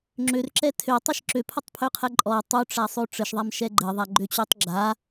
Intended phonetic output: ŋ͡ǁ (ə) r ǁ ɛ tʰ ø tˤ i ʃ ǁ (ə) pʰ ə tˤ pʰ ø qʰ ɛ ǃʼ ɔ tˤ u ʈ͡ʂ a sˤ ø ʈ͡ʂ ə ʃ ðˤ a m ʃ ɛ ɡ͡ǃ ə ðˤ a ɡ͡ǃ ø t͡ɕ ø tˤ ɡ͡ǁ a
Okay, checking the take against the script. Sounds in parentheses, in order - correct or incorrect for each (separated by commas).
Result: incorrect, incorrect